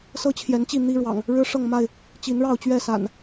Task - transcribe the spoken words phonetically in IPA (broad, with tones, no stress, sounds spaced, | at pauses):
s ɤ˦ t͡ɕʰ j ɛ˨˦ n t͡ɕ i˥˨ n̪ i˦ ɻ w ɑ̰˨˩ ŋ | ɻ ɻ̩˦ ʂ ɤ˥˨ ŋ m a˥˨ ɪ̯ | t͡ɕ i˨˦ n ɻ ɑ˥˨ ʊ̯ t͡ɕ ɥ ɛ˥˨ s a̰˨˩ n